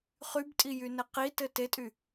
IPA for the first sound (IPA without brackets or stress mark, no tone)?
χ